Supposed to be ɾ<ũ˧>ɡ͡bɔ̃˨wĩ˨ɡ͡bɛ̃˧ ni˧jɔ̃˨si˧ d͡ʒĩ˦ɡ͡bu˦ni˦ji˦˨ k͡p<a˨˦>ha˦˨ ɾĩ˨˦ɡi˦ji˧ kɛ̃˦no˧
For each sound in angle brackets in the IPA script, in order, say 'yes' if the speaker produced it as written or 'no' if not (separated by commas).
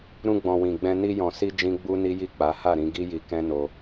yes, yes